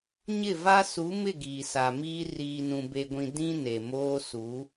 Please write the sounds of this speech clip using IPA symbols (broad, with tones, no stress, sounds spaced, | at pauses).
ɲ ɪ˦˨ v a˦ s u˨˦ m ɪ˦˨ ɡ iː˨ s a˨ m iː˦ r iː˨ n ũ˨ b e˨ ɡʷ ĩ˨ d ĩ˦ n e˨ m oː˦ s u˨˦